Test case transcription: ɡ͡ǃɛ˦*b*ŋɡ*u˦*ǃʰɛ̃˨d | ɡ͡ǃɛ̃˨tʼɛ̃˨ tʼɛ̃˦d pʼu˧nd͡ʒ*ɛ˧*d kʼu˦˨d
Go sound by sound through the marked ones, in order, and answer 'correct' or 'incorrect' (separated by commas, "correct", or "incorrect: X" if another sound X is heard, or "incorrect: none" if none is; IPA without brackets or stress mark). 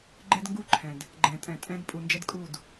incorrect: d, correct, incorrect: ɛ˦